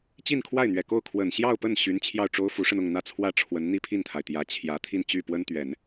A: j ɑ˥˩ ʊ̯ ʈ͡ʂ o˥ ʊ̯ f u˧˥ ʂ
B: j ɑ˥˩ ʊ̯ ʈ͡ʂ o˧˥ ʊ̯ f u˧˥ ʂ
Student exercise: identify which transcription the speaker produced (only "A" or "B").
A